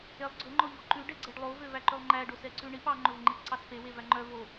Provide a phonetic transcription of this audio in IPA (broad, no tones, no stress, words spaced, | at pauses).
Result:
elˠ ɡ͡ǀɵ ŋ͡ǃɔʎɔǃʉ ɖɛɡ͡ǀɛɖlˠo vøvæǃølˠŋ͡ǃæ ɖosɛǀʉɳip ɑ ŋ͡ǃɵvŋ͡ǃipǀɑspe wevæŋ͡ǃœ vo